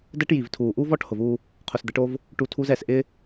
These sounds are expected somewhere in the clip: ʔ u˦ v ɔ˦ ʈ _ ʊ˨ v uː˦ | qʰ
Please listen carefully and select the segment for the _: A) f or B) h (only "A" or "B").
B